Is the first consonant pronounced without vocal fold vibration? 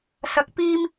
yes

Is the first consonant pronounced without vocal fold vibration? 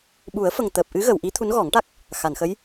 no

